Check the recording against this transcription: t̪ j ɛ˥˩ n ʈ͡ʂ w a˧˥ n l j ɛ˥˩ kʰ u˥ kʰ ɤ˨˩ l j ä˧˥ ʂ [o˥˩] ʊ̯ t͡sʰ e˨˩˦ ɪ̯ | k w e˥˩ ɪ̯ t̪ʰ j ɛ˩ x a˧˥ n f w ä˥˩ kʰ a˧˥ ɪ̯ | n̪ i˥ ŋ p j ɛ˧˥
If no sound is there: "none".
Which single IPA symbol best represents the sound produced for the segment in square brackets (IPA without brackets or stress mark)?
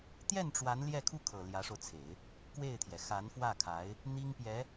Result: o˧